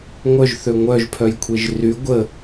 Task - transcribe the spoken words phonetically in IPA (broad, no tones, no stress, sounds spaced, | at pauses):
ŋʷ œ ʒ θ ø ŋʷ œ ʒ pʰ œ j kʷʰ e ʒ r y ɡʷ ə